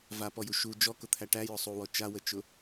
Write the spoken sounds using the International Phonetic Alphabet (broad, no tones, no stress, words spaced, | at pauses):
vapɔju ʃu d͡ʒɔkʊt̪ʰæ ʈæjʊ sˤuwɔ t͡ʃawət͡ʃʊ